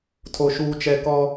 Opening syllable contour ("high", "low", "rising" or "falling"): low